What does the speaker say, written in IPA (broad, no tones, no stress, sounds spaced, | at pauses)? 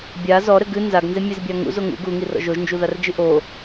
bʲ a z ɔ ɾ ɘ ɡ ɨ n z a ɡ n z e mʲ e z bʲ a ŋ ṵ z o ŋ ṵ ɡ u ŋ i r ɔ̰ ʒ o ʒ n d͡ʒ u ð a r d͡ʒ ɨ ʔ o